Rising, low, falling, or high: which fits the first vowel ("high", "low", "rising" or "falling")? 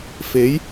rising